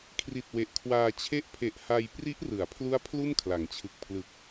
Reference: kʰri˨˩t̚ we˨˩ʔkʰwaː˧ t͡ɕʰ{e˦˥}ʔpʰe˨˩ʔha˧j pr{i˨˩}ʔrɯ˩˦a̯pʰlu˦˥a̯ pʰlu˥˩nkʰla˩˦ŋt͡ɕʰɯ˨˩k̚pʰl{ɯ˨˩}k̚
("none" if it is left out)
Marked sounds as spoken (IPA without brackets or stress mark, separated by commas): e˦˥, i˦˥, ɯ˨˩